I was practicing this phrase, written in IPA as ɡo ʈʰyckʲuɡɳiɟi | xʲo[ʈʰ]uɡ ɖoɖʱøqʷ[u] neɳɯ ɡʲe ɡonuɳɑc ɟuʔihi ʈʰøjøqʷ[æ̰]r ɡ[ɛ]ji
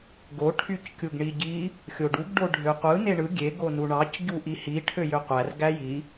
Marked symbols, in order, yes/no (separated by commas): no, no, no, no